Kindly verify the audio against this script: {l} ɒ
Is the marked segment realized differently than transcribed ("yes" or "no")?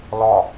no